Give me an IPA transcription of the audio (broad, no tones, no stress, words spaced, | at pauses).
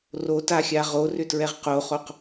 rotaxʲa ʁorʏtɹɛʁ qoχoq